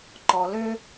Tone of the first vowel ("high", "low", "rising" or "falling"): low